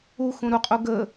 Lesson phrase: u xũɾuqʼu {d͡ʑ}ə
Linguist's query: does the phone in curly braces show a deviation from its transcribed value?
yes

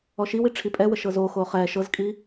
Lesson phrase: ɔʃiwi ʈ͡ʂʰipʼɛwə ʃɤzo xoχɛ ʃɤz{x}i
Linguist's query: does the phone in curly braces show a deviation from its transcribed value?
yes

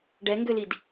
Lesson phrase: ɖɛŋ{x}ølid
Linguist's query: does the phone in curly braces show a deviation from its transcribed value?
yes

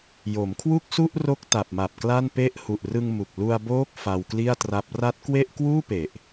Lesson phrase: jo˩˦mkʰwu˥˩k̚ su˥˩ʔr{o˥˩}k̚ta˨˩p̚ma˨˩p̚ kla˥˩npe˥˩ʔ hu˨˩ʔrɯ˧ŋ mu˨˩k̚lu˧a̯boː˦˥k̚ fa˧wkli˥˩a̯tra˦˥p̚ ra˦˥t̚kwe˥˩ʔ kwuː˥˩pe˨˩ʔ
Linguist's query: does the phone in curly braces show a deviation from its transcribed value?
yes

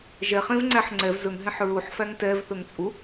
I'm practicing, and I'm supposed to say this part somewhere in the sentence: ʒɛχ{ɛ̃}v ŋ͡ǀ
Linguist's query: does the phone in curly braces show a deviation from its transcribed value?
yes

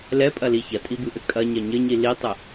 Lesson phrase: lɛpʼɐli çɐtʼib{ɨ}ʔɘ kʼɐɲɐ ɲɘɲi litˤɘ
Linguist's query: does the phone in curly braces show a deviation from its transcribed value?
no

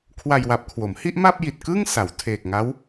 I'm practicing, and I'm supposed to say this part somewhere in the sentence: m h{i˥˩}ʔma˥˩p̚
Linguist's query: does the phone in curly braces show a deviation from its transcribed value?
no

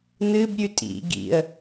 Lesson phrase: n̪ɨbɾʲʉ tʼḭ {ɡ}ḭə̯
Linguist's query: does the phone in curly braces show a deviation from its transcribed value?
no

